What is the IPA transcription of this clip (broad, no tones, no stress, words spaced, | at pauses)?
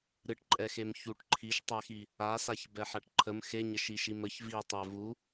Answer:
ɾɨʈǃʼɛxem çuʈ ǃʰiʃtˤɛxi | asaç bɛħaʈǃʰəm xeɲəʃ iʃiməç vitˤɛ vu